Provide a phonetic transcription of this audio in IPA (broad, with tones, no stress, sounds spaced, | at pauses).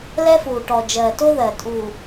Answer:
l ɛ˦ f uː˨ ʈ ɔ˨ d͡ʒ ɜː˨ t o˦ ð ɜ˨ tʼ uː˨